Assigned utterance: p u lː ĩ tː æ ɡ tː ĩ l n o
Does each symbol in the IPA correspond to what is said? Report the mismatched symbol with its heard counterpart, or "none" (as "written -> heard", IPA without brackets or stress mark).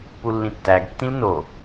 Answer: none